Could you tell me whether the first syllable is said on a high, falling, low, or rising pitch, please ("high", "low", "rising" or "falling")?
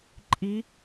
rising